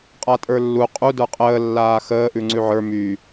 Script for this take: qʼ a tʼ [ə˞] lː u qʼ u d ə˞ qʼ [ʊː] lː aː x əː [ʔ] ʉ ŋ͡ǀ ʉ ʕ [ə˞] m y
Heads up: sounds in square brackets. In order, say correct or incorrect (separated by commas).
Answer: correct, incorrect, correct, correct